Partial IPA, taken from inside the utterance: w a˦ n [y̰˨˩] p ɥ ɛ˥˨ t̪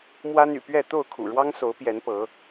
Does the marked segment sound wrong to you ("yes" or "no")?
no